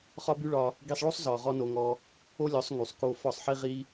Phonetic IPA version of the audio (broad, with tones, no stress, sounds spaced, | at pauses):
χ ɒ˦ b y˦ ɭ ɒ˧ | ɡ i˧ sˤ ɭ o˦ sˤ z ɒ˨ ʁ ɔ˦ n o˧ ŋ ɔ˧ | o˦ lʲ ɔ˨˦ sˤ ŋ y˨ sˤ k o˦ f ɒ˦˨ sˤ ħ i˦ ʁ i˦